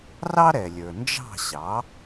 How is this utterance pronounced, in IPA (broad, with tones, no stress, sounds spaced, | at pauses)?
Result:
r ɑ˥ ɾ ɛ˩ lʲ ə˞˩ n d͡ʒ ɑ̤˥˩ ɕ ɑ˩˥